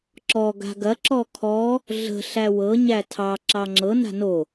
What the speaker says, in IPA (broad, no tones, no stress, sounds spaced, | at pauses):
ǁ ɔ ɡ a̤ ɡ ɐ ǁ ɔ kʰ ɔ | ɮ ə̤ ɬ æ w ɤ ɲ æ tʰ ɑ ǁ ɑ ŋ͡ǁ ɤ n a̤ n o